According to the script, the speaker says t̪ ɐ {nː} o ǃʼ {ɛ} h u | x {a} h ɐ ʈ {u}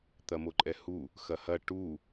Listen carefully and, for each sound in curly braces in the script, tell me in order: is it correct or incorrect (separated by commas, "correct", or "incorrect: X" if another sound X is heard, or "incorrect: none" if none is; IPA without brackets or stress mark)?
incorrect: m, correct, incorrect: ɐ, correct